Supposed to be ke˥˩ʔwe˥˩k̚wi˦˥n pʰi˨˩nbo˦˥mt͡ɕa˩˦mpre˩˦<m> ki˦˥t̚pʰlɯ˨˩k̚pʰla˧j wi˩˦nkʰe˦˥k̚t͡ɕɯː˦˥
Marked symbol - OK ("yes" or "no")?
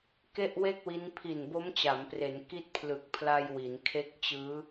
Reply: no